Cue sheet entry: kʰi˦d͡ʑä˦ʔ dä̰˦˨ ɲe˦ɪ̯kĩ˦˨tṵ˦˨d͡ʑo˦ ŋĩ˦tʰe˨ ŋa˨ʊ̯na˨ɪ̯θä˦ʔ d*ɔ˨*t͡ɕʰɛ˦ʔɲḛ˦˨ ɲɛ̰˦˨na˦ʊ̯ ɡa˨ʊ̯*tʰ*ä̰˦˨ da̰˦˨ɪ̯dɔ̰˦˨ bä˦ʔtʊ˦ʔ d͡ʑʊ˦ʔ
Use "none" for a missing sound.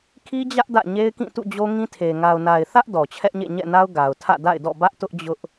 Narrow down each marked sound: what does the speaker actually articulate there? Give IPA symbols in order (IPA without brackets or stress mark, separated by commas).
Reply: ɔ˨, tʰ